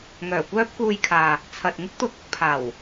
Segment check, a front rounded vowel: present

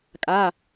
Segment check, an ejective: present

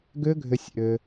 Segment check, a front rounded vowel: present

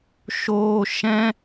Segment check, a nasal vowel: present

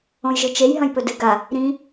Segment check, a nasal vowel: present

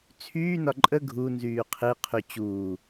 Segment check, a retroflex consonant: absent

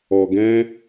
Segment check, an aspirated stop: absent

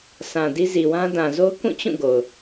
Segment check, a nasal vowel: present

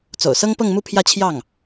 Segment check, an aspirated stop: present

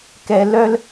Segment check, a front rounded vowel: present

